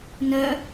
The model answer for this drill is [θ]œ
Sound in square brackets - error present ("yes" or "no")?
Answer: yes